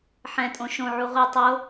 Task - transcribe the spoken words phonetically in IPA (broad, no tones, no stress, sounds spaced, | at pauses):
ħ ɛ̃ tʼ õ ʃ õ ʕ u ʁʷ i tˤ o